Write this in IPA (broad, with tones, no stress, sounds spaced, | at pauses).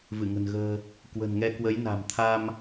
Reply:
v ɨ˧˩ ŋ ə̤˨˩ n ɣ ə̤ː˨˩ | k w ə̤˨˩ n ŋ ɛ˧ k w ə˨˦ j n a̤˨˩ m t̪ʰ a˧ m